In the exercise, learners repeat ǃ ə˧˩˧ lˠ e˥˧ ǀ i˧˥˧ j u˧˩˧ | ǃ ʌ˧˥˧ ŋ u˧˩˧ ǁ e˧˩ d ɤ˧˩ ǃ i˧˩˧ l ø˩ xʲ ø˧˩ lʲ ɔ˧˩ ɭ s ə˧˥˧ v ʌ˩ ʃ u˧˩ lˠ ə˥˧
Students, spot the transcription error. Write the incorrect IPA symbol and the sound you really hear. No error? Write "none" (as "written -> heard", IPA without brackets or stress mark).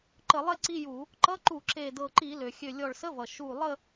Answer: ŋ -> ǃ